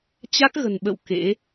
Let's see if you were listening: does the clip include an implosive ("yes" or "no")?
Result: yes